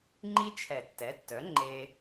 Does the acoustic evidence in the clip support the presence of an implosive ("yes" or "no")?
no